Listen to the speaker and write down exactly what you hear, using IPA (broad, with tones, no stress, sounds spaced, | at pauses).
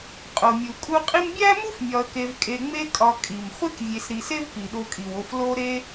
qʼ o˩ mʲ u˩ kʼ u˦ qʼ i˥ m bʲ æ˥ m u˥ f mʲ ɒ˨ ə̯ k e˨ v kʼ e˨ ŋ͡m e˦ kʼ ɒ˨ kʼ i˩ m χʷ e˥ k vʲ e˨ s ɾ i˨ s e˥ v p i˩ ɗ o˨ kʼ i˩ w o˨ f l o˦ ɾ e˥